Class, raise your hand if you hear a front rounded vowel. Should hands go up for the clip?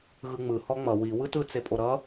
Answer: no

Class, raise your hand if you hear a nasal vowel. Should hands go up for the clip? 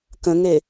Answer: yes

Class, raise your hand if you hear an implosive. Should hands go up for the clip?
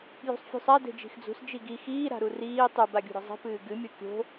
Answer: no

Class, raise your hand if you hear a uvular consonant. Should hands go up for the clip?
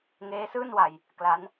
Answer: no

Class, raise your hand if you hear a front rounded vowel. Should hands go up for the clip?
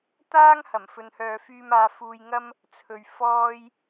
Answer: yes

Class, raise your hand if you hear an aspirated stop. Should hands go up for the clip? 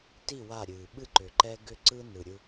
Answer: no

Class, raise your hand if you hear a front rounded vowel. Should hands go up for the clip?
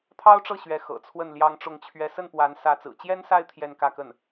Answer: no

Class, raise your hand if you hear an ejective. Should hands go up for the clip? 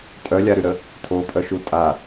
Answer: yes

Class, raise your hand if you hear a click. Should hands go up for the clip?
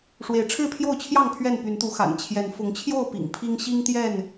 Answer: no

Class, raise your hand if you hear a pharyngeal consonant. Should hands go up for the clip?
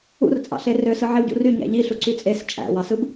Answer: yes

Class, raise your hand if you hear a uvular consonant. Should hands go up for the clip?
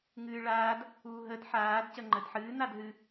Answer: no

